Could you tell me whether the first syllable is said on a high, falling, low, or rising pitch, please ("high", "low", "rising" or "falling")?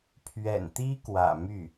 low